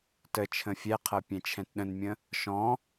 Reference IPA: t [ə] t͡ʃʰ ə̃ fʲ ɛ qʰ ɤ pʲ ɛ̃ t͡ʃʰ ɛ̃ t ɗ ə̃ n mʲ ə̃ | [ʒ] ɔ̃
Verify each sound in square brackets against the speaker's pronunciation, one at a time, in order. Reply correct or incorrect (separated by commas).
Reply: correct, incorrect